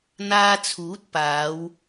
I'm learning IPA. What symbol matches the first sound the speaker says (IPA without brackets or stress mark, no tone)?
n̪